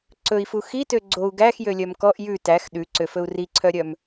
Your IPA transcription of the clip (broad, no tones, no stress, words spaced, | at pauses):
ǀɵi̯fu xitø ɡ͡ǀou̯ ɡæxjølʲœm kɔʔ jʉ tæx ɗʉǀøfɵu̯ riǀʰœɾʲœm